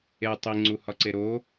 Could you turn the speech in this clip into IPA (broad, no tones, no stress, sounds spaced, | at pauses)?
e tˤ i ŋ͡ǀ u h ɒ ǀ e ɾ o